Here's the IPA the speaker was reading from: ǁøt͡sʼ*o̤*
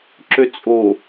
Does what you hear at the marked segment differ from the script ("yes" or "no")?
yes